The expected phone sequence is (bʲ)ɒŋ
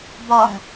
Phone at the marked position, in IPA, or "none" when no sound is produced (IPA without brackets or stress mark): b